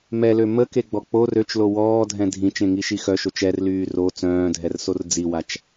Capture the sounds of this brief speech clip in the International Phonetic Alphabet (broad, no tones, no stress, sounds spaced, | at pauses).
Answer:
m ɛ l ø m ə k e ɡ͡b ɔ k͡p o r ø t͡ʃ l o w ɔː dʱ ɛ̃ dʱ ĩ t͡ʃ ẽ ŋ i ʃ i x œ ʃ o t͡ʃ ɛ r l yː r o t͡s œ̃ː dʱ ɛ r s o r d͡z i w a t͡ʃ